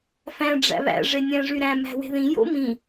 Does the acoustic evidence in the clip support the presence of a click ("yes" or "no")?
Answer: no